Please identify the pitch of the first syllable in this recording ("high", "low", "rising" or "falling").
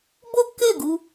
high